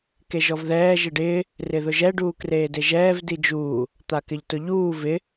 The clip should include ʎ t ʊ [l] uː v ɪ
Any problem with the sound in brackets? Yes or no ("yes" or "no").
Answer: yes